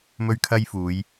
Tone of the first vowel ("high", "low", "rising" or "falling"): high